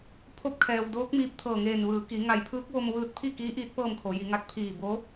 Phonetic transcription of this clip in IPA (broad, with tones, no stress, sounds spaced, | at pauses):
pʰ o˧˥ p̚ kʰ ɛː˩ w d oː˧˥ k̚ m iː˧ p̚ t̪ʰ ɤː˧˩ ŋ eː˧˩ n ʋ ɯː˩˧ k i˩˧ ŋ a˧˩ j pʰ ɯː˧˥ k̚ ʋ o˧ m ʋ ɯː˧ t̚ pʰ i˥˨ k iː˧˥ ʔ iː˧˥ t̚ p ɤː˥˨ m kʰ o˩˧ j i˩˧ ŋ a˧˥ k̚ pʰ iː˧˩ b o˧˥